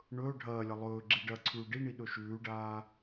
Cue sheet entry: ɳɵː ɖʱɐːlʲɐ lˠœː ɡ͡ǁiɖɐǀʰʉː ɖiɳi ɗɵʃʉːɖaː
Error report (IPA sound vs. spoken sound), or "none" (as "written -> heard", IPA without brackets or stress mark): œː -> ɵː